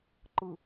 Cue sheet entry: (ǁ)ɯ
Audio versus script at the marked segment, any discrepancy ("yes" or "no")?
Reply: yes